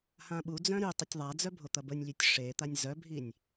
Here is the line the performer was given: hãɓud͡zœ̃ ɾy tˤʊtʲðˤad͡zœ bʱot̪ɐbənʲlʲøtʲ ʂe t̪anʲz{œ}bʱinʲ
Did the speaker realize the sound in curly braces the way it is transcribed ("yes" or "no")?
yes